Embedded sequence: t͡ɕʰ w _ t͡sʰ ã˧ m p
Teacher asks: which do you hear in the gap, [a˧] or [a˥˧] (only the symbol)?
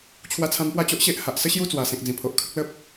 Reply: a˧